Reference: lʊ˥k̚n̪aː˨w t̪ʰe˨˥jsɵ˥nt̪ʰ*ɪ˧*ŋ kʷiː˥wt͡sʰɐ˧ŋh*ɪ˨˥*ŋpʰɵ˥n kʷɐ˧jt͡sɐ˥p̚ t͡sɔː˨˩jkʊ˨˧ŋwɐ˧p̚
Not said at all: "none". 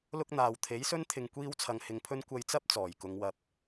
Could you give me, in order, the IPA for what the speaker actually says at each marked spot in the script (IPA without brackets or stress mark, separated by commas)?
ɪ˧, ɪ˧